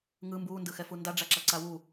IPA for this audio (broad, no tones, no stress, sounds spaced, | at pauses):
ŋ ɯ m b uː n d ɯ x ɛ f u n d a ɖ͡ʐ a ǁ a ǀ a w u